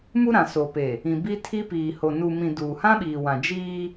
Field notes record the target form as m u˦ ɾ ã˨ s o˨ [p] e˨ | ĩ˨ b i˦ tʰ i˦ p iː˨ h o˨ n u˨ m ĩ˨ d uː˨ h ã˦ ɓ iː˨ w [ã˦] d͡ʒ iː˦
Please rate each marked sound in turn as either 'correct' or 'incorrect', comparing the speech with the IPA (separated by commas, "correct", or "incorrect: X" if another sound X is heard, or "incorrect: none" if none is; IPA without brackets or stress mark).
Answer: correct, incorrect: ã˨